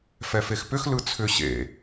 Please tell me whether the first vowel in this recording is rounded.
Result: no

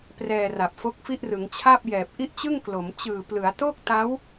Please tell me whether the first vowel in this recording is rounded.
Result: no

